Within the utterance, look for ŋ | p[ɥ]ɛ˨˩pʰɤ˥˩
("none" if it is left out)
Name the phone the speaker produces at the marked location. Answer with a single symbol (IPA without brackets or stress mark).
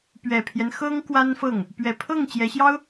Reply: ɥ